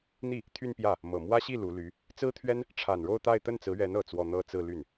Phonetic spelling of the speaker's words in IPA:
n̪ i˥˩ | t̪ʰ y˥˧ n p j ä˥˩ | m ɤ˨˩ m w ä˥ ɕ i˥˩ l u˧˥ l y˧˥ | t͡s ɹ̩˥ t̪ʰ ɥ ɛ˥ n | ʈ͡ʂʰ a˨˩ n ɻ o˥˧ ʊ̯ t̪ a˥˧ ɪ̯ t̪ ə˥˩ n t͡s ɹ̩˧˥ ɥ ɛ˧˥ n ɤ˨˩ t͡s w ɔ˥˧ n̪ ɤ˥˧ t͡s ɹ̩˥˧ l y˥˩ n

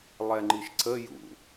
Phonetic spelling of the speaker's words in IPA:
lˠ ɛ ŋ͡ǃ i ʃ ǀ ə j ṵ

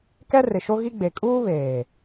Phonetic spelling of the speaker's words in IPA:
k ɛ˦ r ɪ˨ ʃ o˦ ɣ i˦ ɡ͡b e˨ kʼ uː˦ β eː˨

